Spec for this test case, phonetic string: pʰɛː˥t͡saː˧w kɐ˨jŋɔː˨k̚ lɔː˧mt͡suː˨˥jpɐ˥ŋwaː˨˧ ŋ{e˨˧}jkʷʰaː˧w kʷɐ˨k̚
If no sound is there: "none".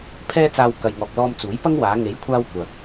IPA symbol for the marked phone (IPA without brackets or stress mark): e˨˥